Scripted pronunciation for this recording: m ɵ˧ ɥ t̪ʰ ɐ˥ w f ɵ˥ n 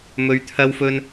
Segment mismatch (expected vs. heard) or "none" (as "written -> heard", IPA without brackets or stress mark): none